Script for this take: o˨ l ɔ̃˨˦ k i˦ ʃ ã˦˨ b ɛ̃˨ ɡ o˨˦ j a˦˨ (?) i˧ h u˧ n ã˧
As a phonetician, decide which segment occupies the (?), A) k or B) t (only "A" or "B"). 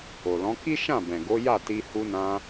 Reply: B